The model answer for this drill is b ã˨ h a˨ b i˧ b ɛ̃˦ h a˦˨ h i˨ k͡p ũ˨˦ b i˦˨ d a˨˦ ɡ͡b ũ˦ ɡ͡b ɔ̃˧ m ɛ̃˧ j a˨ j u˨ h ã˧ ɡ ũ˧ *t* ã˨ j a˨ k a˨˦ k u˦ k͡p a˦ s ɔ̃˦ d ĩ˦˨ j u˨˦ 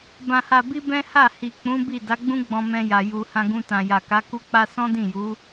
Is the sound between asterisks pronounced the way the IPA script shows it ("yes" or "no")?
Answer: yes